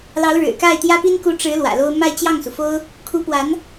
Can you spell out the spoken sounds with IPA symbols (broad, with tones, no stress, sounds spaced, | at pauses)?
l ɑ˧˥ ʊ̯ ɻ ɻ̩˨˩ k a˥˩ ɪ̯ t̪ j ä˥ p i˥ n k u˧˥ ʈ͡ʂ ɻ̩˧˥ l w ä̰˨˩ l o˥ ʊ̯ m a˥˧ ɪ̯ t͡ɕ j ɑ˥˩ ŋ s u˩ f o˥ ʊ̯ | kʰ u˧˥ p w a˧˥ n